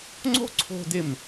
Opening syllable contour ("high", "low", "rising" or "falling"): high